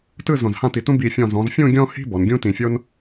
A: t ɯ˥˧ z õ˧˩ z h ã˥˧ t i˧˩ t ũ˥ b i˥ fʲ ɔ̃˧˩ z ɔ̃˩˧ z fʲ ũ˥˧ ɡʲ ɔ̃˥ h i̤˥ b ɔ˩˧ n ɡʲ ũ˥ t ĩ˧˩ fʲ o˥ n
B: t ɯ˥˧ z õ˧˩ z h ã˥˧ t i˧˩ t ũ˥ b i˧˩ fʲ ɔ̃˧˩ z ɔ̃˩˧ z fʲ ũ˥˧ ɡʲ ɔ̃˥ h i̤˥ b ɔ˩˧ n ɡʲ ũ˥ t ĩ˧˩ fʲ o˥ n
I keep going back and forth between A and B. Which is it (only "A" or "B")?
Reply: B